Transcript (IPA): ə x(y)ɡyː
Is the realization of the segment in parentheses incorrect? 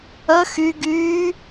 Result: no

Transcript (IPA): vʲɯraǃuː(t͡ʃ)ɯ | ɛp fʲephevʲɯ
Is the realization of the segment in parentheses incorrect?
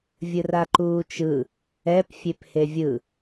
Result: no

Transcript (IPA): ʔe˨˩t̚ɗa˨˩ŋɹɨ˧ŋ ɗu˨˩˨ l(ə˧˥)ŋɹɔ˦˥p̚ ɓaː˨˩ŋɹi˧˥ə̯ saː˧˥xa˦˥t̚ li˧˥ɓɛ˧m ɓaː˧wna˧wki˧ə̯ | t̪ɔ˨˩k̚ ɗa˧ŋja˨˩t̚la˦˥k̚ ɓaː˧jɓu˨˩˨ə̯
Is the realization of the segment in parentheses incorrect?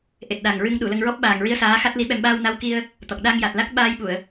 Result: yes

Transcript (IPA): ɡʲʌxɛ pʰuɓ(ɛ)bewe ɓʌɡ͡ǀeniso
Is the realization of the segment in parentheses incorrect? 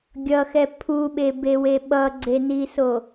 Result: yes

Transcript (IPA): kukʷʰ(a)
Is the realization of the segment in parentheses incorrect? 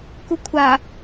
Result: no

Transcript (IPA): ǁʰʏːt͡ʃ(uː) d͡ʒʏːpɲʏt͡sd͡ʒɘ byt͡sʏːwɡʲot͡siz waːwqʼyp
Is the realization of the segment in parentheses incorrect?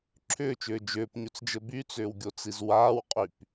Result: yes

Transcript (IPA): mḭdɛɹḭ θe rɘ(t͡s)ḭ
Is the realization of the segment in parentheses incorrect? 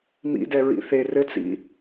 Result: no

